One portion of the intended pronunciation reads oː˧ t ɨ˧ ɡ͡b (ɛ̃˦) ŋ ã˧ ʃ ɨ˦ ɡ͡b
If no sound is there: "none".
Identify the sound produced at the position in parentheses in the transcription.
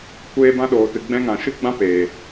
ɛ̃˦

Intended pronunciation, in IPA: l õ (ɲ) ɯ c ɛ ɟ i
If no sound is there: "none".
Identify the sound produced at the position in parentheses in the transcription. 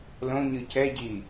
ɲ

